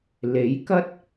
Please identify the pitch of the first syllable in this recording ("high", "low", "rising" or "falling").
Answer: rising